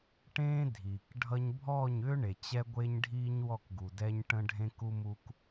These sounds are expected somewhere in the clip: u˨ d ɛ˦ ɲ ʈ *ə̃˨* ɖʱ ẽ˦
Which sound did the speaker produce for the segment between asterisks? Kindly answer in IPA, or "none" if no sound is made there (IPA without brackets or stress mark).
ə̃˦